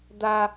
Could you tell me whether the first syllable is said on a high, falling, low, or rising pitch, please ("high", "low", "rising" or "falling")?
high